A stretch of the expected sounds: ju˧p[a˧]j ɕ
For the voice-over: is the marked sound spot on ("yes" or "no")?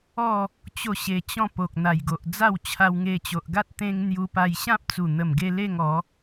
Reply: yes